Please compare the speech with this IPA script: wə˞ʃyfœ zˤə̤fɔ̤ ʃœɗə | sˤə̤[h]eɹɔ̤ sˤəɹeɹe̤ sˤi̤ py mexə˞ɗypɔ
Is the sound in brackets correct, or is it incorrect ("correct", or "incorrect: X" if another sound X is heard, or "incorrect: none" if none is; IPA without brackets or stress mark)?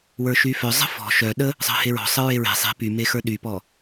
correct